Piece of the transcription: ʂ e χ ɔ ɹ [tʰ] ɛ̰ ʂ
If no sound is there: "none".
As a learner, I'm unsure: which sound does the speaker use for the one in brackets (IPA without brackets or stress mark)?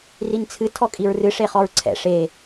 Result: ǀʰ